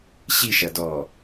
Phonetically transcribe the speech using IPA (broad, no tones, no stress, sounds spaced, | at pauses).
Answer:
ɕ i ʃ ɐ d ɔː